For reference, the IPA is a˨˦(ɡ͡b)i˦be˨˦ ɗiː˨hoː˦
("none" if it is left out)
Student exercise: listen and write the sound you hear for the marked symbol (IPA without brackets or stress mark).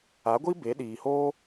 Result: ɡʷ